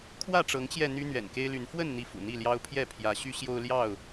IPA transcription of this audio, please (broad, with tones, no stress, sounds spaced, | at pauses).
kʰ w ä˥˨ ʈ͡ʂ ɤ˨˦ ŋ t͡ɕ j ɛ˧ n̪ y˦ n̪ ɥ ɛ̰˨˩ n k e˦ ɪ̯ l y˨˦ n f w ə˥˨ n n̪ i˥˨ f ṵ˨˩ n̪ i˥˨ l j ɑ˦ ʊ̯ pʰ j ɛ˥˨ pʰ j ä˨˦ ɕ y˦ ɕ j o˦ ʊ̯ l j ɑ˥˨ ʊ̯